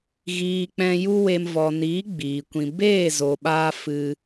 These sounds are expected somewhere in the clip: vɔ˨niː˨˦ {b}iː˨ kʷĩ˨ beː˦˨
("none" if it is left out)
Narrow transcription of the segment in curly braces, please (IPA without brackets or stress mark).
ɡ͡b